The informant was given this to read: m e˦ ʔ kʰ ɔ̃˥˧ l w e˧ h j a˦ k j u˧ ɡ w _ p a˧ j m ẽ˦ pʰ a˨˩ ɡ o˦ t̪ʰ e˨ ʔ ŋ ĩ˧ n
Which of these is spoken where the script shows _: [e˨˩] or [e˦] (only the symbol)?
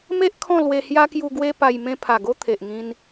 e˦